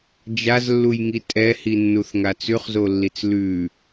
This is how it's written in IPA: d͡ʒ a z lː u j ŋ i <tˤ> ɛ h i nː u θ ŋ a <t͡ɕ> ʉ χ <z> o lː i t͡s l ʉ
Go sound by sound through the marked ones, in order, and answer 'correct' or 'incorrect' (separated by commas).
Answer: incorrect, incorrect, correct